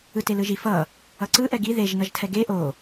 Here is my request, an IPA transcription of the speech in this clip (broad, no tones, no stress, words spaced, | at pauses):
ɯtelɯʒi fʌ | ʌǀɯ ʔɛɡi ðeʒ nʌʒtʰɛɡe ʔo